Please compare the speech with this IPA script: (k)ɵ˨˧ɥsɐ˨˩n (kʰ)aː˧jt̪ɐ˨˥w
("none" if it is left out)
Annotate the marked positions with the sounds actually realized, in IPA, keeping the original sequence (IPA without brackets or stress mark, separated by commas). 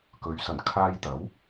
k, kʰ